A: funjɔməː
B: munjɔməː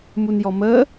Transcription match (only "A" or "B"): B